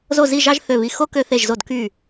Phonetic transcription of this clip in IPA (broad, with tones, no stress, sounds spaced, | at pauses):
z o˥˧ z i˥˧ ʒ ɑ˥ ʒ θ ø˧˩ β i˧˩ x o˥ k ø˧ θ e˧˩ ʒ z o˧˩ d k y˧˩